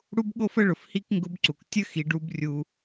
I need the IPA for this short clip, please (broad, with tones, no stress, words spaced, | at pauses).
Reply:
ɽu˥bɠo˥fə˥ɭʊ˩f hi˥kŋɡʊ˧˥bǀu˩k tʲə˥xi˩˧ɖ u˧˥brʲu˧